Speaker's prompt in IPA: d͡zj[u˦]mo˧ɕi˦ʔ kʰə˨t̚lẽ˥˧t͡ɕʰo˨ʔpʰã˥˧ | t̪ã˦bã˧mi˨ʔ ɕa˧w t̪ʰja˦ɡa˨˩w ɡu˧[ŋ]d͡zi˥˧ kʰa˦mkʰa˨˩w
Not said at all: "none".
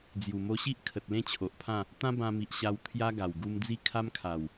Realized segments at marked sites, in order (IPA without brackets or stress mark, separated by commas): u˨˩, m